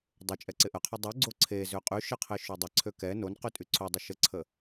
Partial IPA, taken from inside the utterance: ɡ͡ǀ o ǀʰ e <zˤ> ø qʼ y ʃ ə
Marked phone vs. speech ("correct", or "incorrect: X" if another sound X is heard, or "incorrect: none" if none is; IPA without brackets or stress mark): incorrect: z